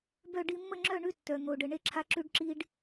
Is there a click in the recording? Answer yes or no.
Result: yes